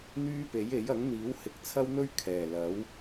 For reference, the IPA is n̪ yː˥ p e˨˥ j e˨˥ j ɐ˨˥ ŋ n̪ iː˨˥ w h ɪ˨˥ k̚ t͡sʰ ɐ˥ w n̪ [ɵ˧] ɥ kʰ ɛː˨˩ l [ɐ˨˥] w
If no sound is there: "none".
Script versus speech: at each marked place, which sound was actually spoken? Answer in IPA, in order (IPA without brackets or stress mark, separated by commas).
ɵ˥, ɐ˨˥